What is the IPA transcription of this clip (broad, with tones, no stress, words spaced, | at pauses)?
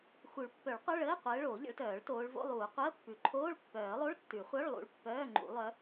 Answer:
xu˨˩˦ɭpːœ˨˩˦ɭqʷœ˧˥˧ ɭəː˧˥˧qʷəː˨˦ ɭoː˨˩˦ʎə̰˨˦ɭtœː˨˩˦ɭ toː˨˦ɭvo̰˧˥˧lˠuː˨˩˦ qʷəː˧˥˧pːʉ˨˩˦ ǃʰoː˧˥˧ɭpːœː˨˩˦lˠo˧˥˧ɭ tːʉ˨˩˦χʷœ˧˥˧ɭlˠṵ˨˦ɭ pːœː˧˥˧ŋ͡ǃṵ˨˩˦ lˠœ˨˦